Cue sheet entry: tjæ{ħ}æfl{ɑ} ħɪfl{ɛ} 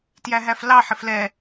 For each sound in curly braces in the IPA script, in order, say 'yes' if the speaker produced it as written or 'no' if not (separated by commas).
no, yes, yes